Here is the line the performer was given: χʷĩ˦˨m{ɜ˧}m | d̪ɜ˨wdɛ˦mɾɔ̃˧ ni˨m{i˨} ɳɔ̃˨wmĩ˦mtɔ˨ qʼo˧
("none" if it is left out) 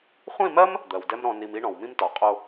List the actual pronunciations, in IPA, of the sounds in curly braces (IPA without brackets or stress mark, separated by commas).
ɜ˦, i˧